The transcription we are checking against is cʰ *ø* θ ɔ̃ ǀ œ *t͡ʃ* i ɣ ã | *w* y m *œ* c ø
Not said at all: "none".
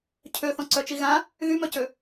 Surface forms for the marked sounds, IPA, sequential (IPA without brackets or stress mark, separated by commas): ø, t͡ʃ, ɣ, œ